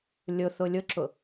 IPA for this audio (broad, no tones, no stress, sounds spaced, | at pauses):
lʲ ʊ θ ʊ lʲ ʊ ǁ ʊ